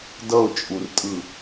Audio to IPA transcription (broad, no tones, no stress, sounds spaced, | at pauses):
d ʌ ʊ̯ t͡ʃʼ u r tʼ ɯ